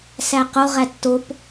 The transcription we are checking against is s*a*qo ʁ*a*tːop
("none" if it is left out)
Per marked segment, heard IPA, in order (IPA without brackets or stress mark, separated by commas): æ, æ